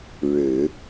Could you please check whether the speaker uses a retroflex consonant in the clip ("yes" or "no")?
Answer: yes